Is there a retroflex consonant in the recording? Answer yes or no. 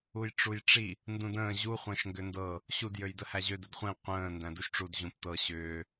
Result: yes